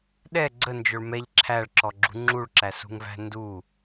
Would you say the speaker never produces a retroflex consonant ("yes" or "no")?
no